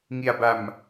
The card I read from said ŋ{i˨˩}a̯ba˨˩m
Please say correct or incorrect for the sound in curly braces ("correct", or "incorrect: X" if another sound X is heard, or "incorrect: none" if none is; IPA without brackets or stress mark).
correct